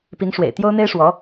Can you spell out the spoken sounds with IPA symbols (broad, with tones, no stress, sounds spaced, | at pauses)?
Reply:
p i˧˥ ŋ ʂ w ḛ˨˩ ɪ̯ t̪ j o˥ ʊ̯ n̪ e˥ ɪ̯ ʂ w ɔ˧˥